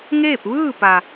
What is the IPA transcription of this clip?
ŋ eː˥˨ p̚ ʋ ɯː˥˨ p a˩

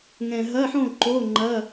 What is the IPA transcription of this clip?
ŋ ɛ̃˨˩ ɦ ɐ˧˥˧ ħ õ˥˨ ǃ o˧˥˧ ŋ͡ǃ ɐ˧˥˧

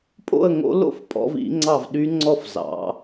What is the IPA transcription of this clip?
pʼ o̰˥˨ ə̯ ŋ o̰˧˥ l o̰˥˨ f pʼ ɔ̰˧˥ v ḭ˧˥ ŋ͡ǀ ɑ˥˨ v ɗ y˧˥ ŋ͡ǀ ɔ˥˨ f z ɑ̰˩˧

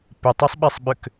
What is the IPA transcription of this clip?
p ɪ tˤ i sˤ ɓ ɛ sˤ ɓ ʏ k

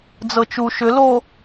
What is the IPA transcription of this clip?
d͡z ɤ t͡ʃ u ʃ ʏ l o

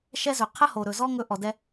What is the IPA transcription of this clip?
ʃ ɛ˥ z ɵ˩ qʰ ə˥ h o˩ ɾ ɵ˩ z ɔ˥ ŋ ɵ˥ ʔ ɔ˩ d ɛ˥

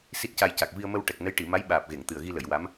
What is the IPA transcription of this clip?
s i˦˥ t̚ c a˧ j c a˨˩ k̚ v i˧ ə̯ m ə˧ w ʈ ɛ˨˩ k̚ n ə˧˥ j ʈ i˨˩˨ m a˧˥ j ɓ aː˨˩ p̚ ɣ e˨˩˨ ŋ t̪ ɨ˨˩ ə̯ ɣ i˧ l ə˨˩˨ j w a˧˥ m

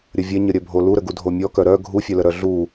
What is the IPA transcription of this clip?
ɾʲ ə vʲ ɛ ɲ ə ɾʲ œ bʱ o l u ɾ ə ɡ u dʱ o mʲ ɔ k œ ɾ œ ɡʱ u fʲ œ l ə ɾ œ ɮ u

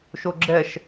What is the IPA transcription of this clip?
ʃ o ɡ͡ǁ ɛ ʃ

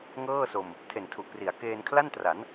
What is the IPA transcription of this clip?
ŋ ɤː˥˩ s o˧ m | tʰ e˨˩ n tʰ u˨˩ ʔ p r i˩˦ a̯ k eː˧ n kʰ l a˥˩ n t r a˩˦ n

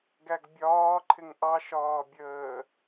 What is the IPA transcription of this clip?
ɡ æ ɡ bʲ ɒː ǃʰ ɪ ŋ ʔ ɑ ʃ ɒː bʲ əː

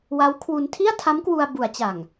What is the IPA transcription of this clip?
w a˦˥ w kʰ w u˧ n tʰ i˥˩ a̯ tʰ a˦˥ m k w u˧ a̯ b u˩˦ a̯ t͡ɕ a˨˩ ŋ

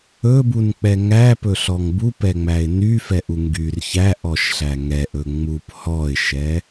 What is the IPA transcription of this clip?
ɵ b u n k͡p ɛ ŋ æ p ɵ ɬ ɔ ŋ b u p ɛ ŋ͡m æ ɪ̯ n y f ɛ ʔ u ŋ ɡ y r ç æ ʔ ɔ ʃ ɬ æ ŋ ɛ ʔ ɵ ŋ͡m u p h ɔ ɪ̯ ʃ ɛ

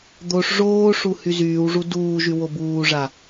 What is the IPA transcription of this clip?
d̪ o ʂ ʐ oː ʂ u h y z yː w ʐ u d uː ʒ y w o b uː ʐ a

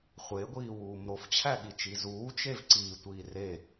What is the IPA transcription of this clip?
χʷ e ɡʷ iː w uː m ɾ o f t͡ɕʰ æ ɠ i t͡ʃ i z uː t͡ʃ e v ǀ iː tʷ iː r e

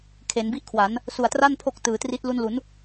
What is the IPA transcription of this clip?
kʰ e˩˦ n b i˥˩ ʔ kʰ w a˩˦ n | s u˨˩ a̯ t r a˥˩ n pʰ o˦˥ k̚ t ɯː˩˦ t r i˦˥ t̚ l u˧ n l u˩˦ n

